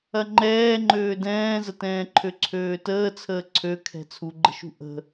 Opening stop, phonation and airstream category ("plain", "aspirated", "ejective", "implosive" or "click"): click